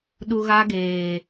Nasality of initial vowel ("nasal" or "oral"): oral